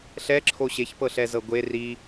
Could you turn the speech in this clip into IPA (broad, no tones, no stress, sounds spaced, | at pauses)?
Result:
ɬ ɛ ǁʰ o ɕ e ç p ɤ ɬ ɛ z ɤ ɡʷ e r i